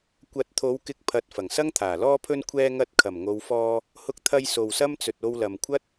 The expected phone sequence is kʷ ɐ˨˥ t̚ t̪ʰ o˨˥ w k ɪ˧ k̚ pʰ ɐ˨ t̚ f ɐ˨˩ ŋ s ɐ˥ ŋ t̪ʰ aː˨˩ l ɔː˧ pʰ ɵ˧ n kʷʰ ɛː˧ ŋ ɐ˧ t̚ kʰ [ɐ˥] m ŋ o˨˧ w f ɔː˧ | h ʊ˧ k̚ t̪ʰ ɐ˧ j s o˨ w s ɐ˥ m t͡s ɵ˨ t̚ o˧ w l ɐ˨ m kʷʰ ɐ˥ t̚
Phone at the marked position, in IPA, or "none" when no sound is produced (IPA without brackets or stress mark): ɐ˨˩